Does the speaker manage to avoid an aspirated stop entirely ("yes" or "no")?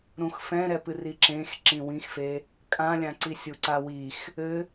yes